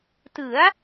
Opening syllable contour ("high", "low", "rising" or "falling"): rising